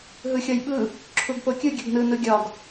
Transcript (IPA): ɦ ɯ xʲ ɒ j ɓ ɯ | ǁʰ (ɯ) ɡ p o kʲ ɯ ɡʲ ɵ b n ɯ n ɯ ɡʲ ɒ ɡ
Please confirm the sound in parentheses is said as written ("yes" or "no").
no